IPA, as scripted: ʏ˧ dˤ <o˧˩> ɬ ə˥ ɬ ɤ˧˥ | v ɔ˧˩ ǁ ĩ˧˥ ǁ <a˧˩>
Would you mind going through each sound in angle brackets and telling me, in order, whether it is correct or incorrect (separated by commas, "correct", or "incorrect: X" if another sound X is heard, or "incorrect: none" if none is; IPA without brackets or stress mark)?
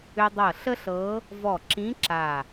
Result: incorrect: ɤ˧˩, correct